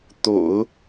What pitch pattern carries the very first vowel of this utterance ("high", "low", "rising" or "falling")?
low